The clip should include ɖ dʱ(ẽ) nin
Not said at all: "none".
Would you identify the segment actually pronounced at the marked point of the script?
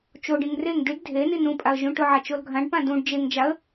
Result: e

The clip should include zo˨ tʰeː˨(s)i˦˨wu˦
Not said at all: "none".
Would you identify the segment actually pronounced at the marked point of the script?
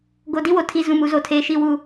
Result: ʃ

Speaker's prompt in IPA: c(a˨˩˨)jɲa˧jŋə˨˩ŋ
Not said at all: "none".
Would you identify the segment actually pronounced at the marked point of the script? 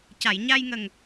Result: a˨˩˨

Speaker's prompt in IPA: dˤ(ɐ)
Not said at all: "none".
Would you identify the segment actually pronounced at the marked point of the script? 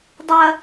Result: ɐ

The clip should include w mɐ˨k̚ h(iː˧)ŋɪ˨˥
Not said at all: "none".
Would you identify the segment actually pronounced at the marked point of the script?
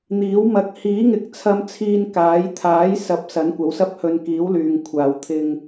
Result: iː˨˥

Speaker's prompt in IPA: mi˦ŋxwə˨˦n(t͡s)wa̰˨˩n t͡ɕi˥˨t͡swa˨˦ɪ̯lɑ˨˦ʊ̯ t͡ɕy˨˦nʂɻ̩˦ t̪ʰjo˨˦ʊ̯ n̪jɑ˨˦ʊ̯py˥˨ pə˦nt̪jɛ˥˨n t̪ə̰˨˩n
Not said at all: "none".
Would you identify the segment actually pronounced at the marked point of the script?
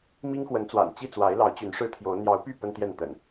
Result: t͡s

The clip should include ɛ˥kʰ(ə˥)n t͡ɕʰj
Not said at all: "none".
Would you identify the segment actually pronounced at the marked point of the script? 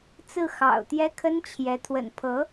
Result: ə˥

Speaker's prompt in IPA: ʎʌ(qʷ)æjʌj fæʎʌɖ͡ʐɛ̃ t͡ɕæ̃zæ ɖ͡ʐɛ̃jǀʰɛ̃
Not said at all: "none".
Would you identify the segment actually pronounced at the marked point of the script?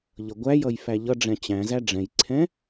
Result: ɡʷ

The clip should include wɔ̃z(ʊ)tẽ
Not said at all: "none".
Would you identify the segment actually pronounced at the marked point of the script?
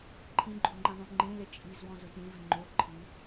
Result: ʊ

